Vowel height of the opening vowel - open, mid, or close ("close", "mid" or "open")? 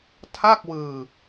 open